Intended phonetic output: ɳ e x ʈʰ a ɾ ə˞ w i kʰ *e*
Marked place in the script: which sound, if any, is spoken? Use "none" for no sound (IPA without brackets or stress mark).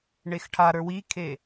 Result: e